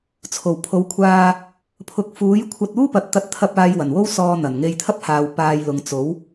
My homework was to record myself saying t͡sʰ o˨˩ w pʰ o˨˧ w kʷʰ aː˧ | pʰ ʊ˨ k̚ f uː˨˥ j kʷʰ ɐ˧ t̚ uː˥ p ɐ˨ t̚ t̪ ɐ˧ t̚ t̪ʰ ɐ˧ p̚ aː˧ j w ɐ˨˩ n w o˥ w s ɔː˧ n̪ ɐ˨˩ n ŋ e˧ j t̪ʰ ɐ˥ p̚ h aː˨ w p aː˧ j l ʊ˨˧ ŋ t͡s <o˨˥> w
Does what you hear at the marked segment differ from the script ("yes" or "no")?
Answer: no